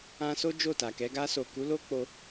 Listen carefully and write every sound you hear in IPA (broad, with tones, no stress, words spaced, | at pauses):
ã˧so˦ d͡ʒo˦˨ta˨kɛ˨˦ ɡa˧so˨ku˨˦lo˦ k͡po˦